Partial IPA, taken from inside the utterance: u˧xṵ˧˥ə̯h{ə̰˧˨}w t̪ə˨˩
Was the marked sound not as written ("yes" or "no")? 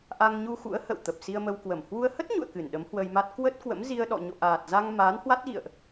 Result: no